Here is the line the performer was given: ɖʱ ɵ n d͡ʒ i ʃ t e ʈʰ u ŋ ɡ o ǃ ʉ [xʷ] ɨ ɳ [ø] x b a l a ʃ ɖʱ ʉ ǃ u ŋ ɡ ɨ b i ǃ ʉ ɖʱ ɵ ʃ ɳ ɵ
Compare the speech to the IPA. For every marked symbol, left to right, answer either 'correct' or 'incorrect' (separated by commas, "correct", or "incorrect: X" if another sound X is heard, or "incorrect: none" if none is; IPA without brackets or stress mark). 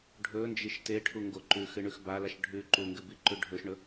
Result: incorrect: x, incorrect: ʉ